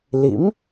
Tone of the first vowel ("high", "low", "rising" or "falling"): rising